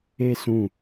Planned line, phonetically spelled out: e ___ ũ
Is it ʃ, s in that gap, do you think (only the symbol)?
s